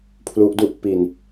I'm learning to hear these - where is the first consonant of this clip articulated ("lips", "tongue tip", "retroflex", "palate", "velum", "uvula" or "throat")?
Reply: lips